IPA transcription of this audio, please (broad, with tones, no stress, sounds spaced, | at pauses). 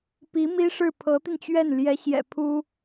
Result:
p i˧˥ m i˥ ʂ ɻ̩˥˩ pʰ ɤ˧˥ t̪ i˧ n t͡ɕ ɥ ɛ˥˩ n l j ɛ˧˥ ɕ j ɛ̰˨˩ pʰ u˥